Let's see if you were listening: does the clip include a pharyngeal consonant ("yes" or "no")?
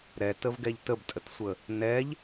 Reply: no